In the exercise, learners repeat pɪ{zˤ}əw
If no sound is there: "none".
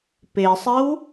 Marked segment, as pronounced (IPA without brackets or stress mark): sˤ